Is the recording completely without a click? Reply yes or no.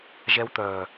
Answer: yes